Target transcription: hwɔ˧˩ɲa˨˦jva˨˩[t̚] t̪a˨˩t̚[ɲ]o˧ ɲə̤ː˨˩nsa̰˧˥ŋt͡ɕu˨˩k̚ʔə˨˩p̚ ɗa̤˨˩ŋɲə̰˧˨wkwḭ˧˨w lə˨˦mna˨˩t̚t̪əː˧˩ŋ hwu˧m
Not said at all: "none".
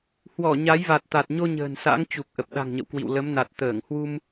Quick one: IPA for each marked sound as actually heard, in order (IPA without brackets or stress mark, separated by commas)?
t̚, ɲ